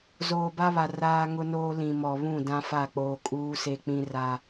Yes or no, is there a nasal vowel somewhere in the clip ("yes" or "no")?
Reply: yes